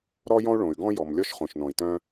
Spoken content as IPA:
ɾ ɔ˥ j ɔ̃˥ u̯ ɭ õ˩ y̯ ɡ ɔ̃˥ j ɔ˩ m lʲ ɔ˥ ʃ χ õ˩ ʃ n ɔ̃˩ i̯ t œ̃˥

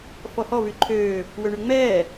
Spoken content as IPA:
f ɔ h ɔ v y ǃʰ øː | w ø ɳ y ŋ͡m ɛː

